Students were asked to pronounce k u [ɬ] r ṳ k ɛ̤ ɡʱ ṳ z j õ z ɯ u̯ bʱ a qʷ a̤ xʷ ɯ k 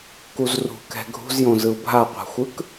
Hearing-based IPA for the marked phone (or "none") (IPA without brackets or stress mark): z